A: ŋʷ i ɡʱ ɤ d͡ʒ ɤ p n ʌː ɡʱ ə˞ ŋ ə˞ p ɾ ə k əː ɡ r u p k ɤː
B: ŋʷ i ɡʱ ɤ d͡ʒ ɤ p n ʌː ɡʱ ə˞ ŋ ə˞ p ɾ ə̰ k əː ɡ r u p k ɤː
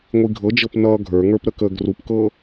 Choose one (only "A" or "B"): A